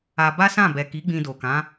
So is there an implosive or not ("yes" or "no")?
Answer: no